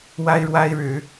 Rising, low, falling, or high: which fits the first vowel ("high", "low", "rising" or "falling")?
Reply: high